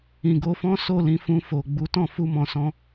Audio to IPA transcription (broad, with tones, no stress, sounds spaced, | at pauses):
ĩ˨ ɡ o˧ f ɔ̃˦ s o˦˨ l ĩ˧ f ũ˧ f o˨ ɡ͡b u˨˦ t ɔ̃˦˨ f u˧ m ɔ̃˨ s ɔ̃˧